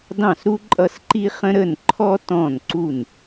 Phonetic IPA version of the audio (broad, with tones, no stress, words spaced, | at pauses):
dɑ̃˥˩sɾu˥ ǃʼʌ˥˩sǃi˥χə̃˥ ɾə˥˩nǃʰɔ˥ tɔ̃˥˩nǀu˥˩n